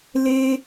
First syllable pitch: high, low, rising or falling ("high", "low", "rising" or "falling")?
high